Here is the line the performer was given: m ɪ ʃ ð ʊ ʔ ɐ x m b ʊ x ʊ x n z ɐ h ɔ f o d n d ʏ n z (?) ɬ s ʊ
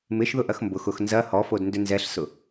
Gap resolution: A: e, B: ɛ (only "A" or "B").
B